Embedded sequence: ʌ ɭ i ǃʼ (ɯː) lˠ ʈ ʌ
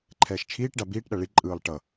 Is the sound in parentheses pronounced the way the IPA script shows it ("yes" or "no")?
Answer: yes